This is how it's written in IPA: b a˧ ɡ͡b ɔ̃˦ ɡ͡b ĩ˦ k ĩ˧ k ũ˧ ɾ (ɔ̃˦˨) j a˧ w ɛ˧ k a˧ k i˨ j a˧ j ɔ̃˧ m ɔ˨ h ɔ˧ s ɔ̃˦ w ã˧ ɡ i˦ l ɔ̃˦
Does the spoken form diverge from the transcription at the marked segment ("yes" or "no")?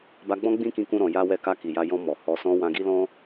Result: yes